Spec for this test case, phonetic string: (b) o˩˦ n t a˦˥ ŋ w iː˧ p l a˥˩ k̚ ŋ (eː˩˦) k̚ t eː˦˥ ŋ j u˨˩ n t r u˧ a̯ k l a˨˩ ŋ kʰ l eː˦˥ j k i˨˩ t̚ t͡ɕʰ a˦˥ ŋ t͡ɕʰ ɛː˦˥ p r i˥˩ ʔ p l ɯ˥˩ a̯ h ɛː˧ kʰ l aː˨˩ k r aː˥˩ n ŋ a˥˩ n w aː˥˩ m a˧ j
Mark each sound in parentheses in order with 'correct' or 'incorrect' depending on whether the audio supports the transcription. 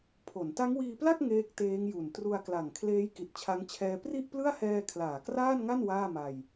incorrect: pʰ, incorrect: eː˦˥

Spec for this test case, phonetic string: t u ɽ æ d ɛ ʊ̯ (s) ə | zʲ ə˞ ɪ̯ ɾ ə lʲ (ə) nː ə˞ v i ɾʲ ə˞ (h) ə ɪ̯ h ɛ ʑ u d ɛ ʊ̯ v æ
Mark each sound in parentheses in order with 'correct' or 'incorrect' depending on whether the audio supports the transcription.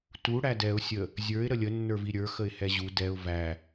incorrect: sʲ, correct, incorrect: x

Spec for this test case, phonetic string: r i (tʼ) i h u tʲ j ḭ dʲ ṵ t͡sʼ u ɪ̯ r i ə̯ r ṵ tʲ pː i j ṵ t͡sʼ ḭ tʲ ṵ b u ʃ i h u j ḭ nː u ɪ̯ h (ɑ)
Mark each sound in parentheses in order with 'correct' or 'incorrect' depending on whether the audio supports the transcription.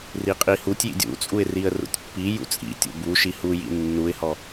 incorrect: qʼ, incorrect: ɔ

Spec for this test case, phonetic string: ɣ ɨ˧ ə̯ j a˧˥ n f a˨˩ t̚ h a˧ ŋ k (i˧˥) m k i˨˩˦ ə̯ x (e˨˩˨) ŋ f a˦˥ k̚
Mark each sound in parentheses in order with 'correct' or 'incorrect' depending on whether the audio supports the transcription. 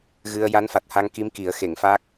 correct, correct

